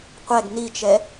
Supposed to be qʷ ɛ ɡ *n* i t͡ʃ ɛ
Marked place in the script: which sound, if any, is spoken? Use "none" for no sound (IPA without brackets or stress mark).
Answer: n